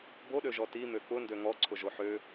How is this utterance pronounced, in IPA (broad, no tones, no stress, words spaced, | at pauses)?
boɗøʒɔ timø k͡pʊndø ŋɔǀʰʊʒo ħø